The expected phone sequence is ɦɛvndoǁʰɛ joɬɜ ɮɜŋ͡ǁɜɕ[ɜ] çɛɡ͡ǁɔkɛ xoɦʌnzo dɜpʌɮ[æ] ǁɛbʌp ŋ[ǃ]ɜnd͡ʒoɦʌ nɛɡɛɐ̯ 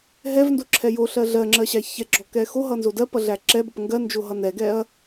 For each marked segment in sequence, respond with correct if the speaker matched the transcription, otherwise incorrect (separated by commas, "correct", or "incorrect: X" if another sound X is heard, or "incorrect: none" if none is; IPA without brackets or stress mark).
incorrect: æ, correct, incorrect: ɡ